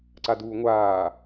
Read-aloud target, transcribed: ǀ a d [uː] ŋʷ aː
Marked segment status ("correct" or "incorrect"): correct